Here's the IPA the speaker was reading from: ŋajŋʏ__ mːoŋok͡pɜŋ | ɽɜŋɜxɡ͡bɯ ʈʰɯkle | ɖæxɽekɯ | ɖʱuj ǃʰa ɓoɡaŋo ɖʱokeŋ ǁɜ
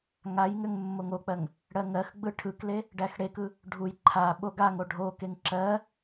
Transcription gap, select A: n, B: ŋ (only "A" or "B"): B